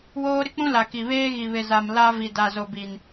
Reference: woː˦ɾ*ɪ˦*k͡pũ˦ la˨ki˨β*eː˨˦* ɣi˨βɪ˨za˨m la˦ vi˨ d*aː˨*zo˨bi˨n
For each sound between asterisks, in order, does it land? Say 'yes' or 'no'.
yes, no, no

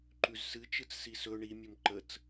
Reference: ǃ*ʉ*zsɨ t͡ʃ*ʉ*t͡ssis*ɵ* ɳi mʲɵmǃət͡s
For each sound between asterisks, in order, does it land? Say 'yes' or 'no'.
yes, no, yes

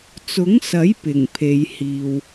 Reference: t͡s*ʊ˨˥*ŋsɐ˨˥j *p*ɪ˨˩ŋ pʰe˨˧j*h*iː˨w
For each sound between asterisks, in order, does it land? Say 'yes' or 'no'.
yes, yes, yes

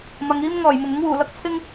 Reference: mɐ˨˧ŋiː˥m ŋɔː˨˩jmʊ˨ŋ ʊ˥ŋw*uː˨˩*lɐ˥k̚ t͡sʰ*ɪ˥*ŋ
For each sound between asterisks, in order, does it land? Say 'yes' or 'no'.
yes, yes

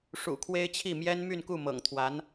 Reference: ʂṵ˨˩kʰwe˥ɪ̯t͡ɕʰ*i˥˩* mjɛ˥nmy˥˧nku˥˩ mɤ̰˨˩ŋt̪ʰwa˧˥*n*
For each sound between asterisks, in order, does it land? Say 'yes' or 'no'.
yes, yes

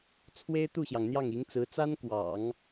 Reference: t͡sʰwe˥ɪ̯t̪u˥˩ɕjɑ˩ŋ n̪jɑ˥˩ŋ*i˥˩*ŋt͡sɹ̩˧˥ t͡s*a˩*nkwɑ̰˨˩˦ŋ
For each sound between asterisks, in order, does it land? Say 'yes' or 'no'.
no, no

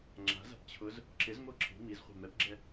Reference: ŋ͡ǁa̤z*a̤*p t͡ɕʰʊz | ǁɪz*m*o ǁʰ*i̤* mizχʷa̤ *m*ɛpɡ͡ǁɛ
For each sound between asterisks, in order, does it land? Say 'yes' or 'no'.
yes, yes, yes, yes

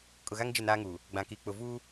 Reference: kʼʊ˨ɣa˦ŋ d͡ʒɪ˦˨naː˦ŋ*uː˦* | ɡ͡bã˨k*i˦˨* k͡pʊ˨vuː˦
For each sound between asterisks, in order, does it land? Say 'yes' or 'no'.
no, no

